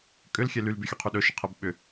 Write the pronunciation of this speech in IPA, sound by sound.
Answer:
kʼ ʏ l xʲ ɛ l y l b y xʲ ɵ qʰ y ɗ ɵ ʃ ə qʰ ɛ b ɓ ʏ

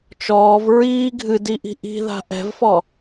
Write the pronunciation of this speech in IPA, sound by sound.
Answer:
t͡ʃ ɔː v ɹ iː ɡʱ ɨ d i ʔ i̤ ʔ i̤ ð a̤ ʔ ɛ̤ v f ɔ

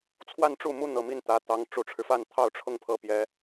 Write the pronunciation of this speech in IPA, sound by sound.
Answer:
t͡sʰ w a˥˧ n ʈ͡ʂ u˥˩ m u˥ n̪ ɤ˨˩ m i˥˩ n t̪ ä˧˥ t̪ ɑ˧˥ ŋ ʈ͡ʂ u˨˩ ʈ͡ʂʰ ɻ̩˦ f a˥˧ n t̪ʰ ɑ˥˧ ʊ̯ ʈ͡ʂʰ ʊ˥˩ ŋ pʰ ɤ˧˥ p j ɛ˧˥

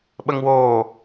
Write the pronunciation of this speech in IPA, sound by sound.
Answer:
ɓ ə ŋ w oː

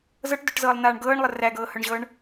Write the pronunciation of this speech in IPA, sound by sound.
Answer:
z ɤ ʈ d œ ʈ z ɤː lˠ n̪ aː ɳ ɡ ɤː ɳ lˠ ə r æ ɡ ɤː h œ ɳ ʑ ɤː ɳ

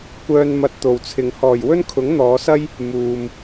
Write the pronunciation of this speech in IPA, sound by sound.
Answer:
kʷ œː˧ n m ɐ˧ t̚ t̪ o˨ w t͡sʰ ɪ˨ ŋ h ɔː˨˩ j w ɵ˥ n kʰ ʊ˨˥ ŋ n̪ ɔː˨˧ s ɐ˥ j | m uː˨ m

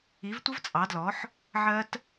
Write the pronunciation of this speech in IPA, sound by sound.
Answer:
i˨˥ v tʷ ə˦˥ v t͡sʼ ɑ˨˥ d l ɔ˨˥ ħ | ʕ ɜ˦˥ t

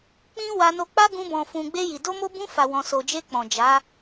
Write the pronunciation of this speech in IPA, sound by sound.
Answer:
k͡p ĩ˦ w a˧ n o˧ k͡p a˦ ɡ ũ˧ b ɔ̃˨ f ũ˨ ɡ͡b e˧ j i˨ d o˧ m o˧ b ũ˧ f a˨ w ɔ̃˨ s o˨ d͡ʒ e˧ k͡p ɔ̃˨ d͡ʒ a˨˦

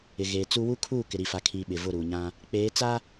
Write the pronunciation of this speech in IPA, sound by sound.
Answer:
ɪ˨ ɣ eː˨ t͡s u˦ w u˦ kʰ uː˦˨ k ɪ˨ ɾ i˨ f a˨ kʰ iː˨ ɓ ɪ˨ v ʊ˦˨ ɾ uː˨ ɲ ã˦ | k͡p eː˨˦ t͡s a˦

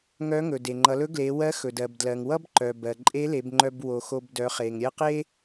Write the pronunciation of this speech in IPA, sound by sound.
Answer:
ŋ œ˧˥ ŋ ɵ˩ d e˩ ŋ͡ǃ ʌ˩˧ l ɵ˧˥ ɡ l e˩˧ w ɜ˧˥ x ɵ˩ d ɜ˩ b d l ɜ˩ ŋ w ʌ˥ b ǃ œ˩ b ɜ˩ ǃʼ e˧˥ l e˩˧ b ŋ͡ǃ œ˧ b w o˩˧ x o˧ b d œ˩˧ χ e˩ ŋ ɾʲ ɜ˥ q e˥

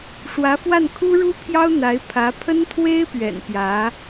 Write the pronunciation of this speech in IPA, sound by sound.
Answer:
ʂ w ä˧˥ f w a˥˩ n kʰ u˥ ɻ u˥ pʰ j ɑ˥ ʊ̯ n̪ a˧˥ ɪ̯ pʰ ä˧˥ pʰ ə˥ n t̪ʰ w e˥ ɪ̯ p ɥ ɛ̰˨˩ n p j ä˧˥

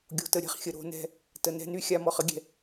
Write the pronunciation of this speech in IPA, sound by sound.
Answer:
ɡʲ o̤˨ t ə˨ ɾʲ ɛ̤˦ χ xʲ ə˨ ɾ o̤˦ n ɛ̤˦ | t ə˨ n ɛ̤˦ n y˦ xʲ a˦ m ɔ˨ χ ə˦ ɡʲ ɛ̤˨

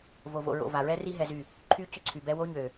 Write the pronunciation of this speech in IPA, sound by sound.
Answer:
v o˨ v o̰˨ ɹ o̰˨ v a˨ ɹ ɛ˦ r i˦ ɦ ɛ˦ z y˦˨ | ǃʰ y˦ c ʏ˦ ǀʰ y˨ b ɛ˦ w o˦ ɲ ø˨

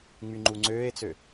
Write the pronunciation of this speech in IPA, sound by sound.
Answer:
ŋ͡m y ŋ͡ǃ u ŋ͡ǀ øː e̯ t͡s ø

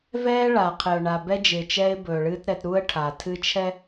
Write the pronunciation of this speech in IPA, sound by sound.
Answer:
v ɛː˦ ɭ a˨ qʰ ɪ˨ ʊ̯ ɳ a˨ b ɛ˦ d͡ʒ ɪː˨ t͡ʃ ɛː˦ ɪ̯ b ɵː˨ ɭ ɨː˦ t ɾ ɛ˨˦ t ɾ u˦ ə̯ ʈʰ a˨ tʰ ɨ˦ t͡ʃʰ ɛ˦

